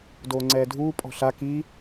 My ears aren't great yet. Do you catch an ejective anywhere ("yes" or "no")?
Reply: yes